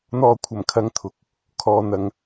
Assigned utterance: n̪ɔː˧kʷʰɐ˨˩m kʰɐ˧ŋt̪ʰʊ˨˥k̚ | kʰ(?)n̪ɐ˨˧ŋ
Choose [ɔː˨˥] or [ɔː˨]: ɔː˨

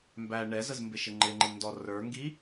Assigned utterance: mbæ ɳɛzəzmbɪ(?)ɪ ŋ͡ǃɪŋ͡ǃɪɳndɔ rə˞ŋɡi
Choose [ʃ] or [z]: ʃ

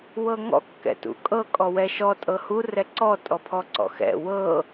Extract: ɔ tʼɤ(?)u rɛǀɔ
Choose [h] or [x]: h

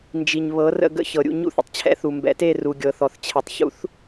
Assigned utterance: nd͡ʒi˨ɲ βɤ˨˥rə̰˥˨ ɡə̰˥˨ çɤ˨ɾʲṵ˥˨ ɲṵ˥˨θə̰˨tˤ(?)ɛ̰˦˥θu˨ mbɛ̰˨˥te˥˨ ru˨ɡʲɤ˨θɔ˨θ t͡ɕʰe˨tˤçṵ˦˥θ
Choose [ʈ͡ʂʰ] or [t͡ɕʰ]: t͡ɕʰ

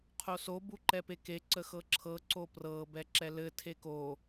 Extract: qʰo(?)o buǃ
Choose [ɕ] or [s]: s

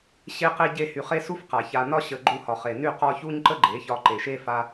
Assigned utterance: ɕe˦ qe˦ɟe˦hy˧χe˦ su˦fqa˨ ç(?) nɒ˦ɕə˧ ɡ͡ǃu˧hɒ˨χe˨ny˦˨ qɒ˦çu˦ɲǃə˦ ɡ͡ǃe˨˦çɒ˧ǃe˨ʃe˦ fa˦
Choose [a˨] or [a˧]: a˧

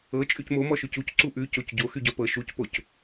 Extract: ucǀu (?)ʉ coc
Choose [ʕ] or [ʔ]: ʔ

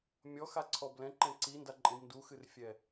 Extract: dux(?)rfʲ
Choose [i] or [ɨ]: ɨ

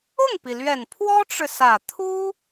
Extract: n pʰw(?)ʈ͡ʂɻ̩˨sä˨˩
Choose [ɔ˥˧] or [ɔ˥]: ɔ˥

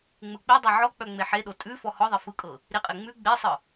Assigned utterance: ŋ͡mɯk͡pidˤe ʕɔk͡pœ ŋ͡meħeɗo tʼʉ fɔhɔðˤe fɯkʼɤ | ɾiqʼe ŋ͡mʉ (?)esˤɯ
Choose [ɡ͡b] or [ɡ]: ɡ͡b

